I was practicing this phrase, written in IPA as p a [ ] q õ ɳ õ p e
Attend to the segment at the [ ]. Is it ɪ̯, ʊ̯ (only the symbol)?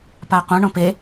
ʊ̯